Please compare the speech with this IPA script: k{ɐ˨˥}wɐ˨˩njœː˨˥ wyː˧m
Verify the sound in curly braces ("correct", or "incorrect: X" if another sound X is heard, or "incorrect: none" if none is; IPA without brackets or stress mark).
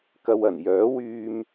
incorrect: ɐ˧